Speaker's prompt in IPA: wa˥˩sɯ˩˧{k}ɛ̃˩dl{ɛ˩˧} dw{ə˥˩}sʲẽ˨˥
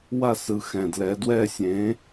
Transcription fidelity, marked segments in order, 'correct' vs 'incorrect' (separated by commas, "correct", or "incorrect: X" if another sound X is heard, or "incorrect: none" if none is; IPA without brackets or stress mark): incorrect: x, correct, incorrect: ɛ˥˩